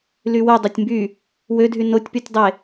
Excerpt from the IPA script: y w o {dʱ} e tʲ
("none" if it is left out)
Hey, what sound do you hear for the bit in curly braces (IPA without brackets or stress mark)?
dˤ